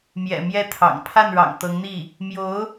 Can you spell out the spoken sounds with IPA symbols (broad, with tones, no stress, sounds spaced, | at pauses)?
m j ɛ̰˨˩ m j ɛ˥˩ t̪ʰ ɑ̰˨˩ ŋ pʰ a˥˩ n ɻ ɑ̰˨˩ ŋ t̪ ɤ˧˥ ŋ n̪ i˥˩ | m j o˧˥ ʊ̯